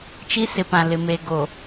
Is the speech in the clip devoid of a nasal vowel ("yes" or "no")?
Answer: no